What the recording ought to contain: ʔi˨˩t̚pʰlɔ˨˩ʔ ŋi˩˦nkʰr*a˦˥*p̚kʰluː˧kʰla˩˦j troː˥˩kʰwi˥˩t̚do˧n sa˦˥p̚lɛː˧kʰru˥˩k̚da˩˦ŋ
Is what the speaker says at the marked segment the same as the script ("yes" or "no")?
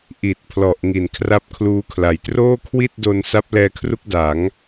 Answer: yes